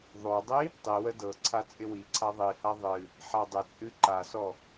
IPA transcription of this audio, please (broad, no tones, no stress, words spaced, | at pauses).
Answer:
ðˤodˤi | tˤiwə dɤǀʰa t͡sʼɪwiǀʰa ðˤiha ðˤɨ | ħadˤɪt͡sʼɨ ǃasɔ